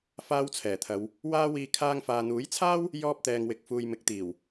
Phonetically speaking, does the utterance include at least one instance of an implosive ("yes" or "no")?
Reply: no